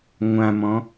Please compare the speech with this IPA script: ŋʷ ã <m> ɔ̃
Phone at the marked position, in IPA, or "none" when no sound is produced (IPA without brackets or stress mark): m